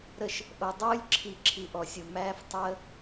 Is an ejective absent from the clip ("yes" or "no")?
yes